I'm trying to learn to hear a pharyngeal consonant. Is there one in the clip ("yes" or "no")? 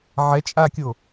yes